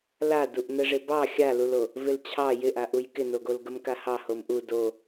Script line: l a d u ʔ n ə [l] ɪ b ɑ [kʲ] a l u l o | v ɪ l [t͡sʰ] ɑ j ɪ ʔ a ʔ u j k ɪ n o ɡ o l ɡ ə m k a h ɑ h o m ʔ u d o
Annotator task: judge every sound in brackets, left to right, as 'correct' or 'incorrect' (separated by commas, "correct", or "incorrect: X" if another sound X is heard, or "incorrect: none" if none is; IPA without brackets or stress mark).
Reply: incorrect: ʐ, incorrect: xʲ, incorrect: t͡ɕʰ